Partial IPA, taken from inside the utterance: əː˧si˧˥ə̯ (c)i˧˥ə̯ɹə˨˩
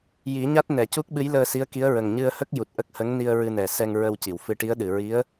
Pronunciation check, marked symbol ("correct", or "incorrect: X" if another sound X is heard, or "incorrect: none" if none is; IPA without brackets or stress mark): incorrect: k